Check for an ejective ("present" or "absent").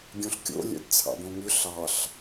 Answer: absent